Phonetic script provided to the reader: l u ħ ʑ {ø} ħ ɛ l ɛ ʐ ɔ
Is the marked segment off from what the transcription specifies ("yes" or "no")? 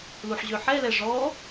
no